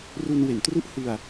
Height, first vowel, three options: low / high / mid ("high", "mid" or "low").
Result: high